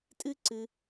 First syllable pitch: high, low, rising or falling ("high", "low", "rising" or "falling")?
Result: high